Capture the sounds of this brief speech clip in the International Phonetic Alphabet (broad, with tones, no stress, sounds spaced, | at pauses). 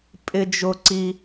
pʼ ɪ˥ d͡ʒ ʊ˥ ǀ i˥